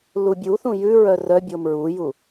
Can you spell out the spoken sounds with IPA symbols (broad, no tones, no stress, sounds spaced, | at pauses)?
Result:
l u bʲ u θ ũ j ʉ ɹ œ r œ bʲ o m ɹ u j u